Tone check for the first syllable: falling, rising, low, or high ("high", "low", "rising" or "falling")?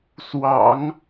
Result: low